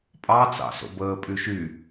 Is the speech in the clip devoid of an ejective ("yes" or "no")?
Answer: no